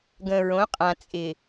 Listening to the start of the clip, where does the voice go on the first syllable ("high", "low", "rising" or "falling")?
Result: low